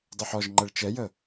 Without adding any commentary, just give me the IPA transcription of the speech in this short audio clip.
dˤ ɛ ħ ɔ ʒ ŋ͡ǃ ɛ ɭ t͡ʃ ɛ j ə

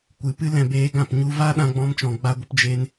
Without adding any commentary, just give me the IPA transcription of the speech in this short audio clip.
kʷ ɨ˨˦ p ɨ˦ l ɛ̃˧ b eː˧ ɡ ã˦˨ p ɲ u˧ v a˦ ɗ ã˦ ɡ͡b ɔ̃˦ m t͡ʃ ɔ̃˧ ɡ͡b a˦ ɡʷ ə˦ p d͡ʒ e˦ n

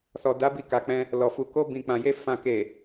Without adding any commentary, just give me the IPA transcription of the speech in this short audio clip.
s ɔ˨ d a˨˦ b i˧ k a˨ k͡p ɛ̃˧ | l ɔ˨ f u˨ k o˧ b ĩ˨ k͡p ã˨ j e˧ f ã˨ k e˨

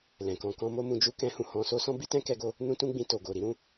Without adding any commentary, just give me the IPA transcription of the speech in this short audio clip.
l ɛ̃˨ k ɔ̃˧ k ɔ̃˦ m o˦ m ũ˧ d͡ʒ u˦ k ɛ̃˦ h ũ˧ h ɔ̃˧ s o˦ s ɔ̃˦ b i˦ t ɛ̃˦ k ɛ˧ ɡ o˧ | n ũ˦ t ũ˦ ɡ͡b ĩ˧ t o˨ ɡ o˨ ɾ i˨˦ ɾ ũ˧

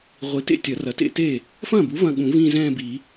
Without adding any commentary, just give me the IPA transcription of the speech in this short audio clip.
ʁʷ i˩˥ t ḛ˥˩ tʲ ɐ˨˩˦ r ɐ˩˥ t ḛ˥˧ t e˥˩ | f ɐ̃ː˥˩ b u˩˥ v ɐ̃˥˧ ɠ ũ˨˩˦ v ĩ˥˧ z ɛ̃ː˥˧ b i˨˩˦

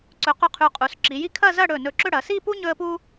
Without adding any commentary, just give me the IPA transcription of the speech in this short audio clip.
ǀ ɵ˩˧ q ɵ˧ qʰ ʉ˩˧ qʼ u˩˧ s ǁ i˩˧ j i˥ kʰ ɐ˥˧ z ɐ˥˧ ɽ ɵ˧˩ n ɵ˧˩ ǁ ɵ˥˧ ɽ ɐ˩˧ s i˥˧ p u˥ ɲ ɵ˥ ə̯ p u˥

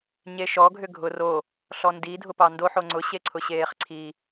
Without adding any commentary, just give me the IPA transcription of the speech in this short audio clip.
ɲ e ʃ ɔ ɡʱ ʏ ɡʱ ʊ r o | ɬ ɔ n d i dʱ ʊ p ɑ n d o ħ o ŋ͡ǀ ʊ ɕ e ǀʰ ʊ ɕ eː χ ǀʰ i

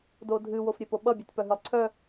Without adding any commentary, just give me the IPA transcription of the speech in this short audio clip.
d o dʱ ɨ w o f ɾʲ e p o ɓ ʌ bʲ ɨ t p œ ɦ ɨ lˠ ǀʰ œ

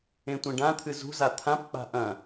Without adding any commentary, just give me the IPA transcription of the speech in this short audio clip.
ẽ tʷ ɐ̃ ɖ ã t̪ʰ ɨ z ṳ z a t̪ʰ ã p k͡p a̤ ʔ ɐ̃

